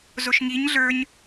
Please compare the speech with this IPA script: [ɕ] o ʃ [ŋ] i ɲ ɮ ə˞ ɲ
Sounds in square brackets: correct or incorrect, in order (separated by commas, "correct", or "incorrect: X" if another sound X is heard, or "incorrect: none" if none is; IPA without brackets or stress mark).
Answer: incorrect: z, correct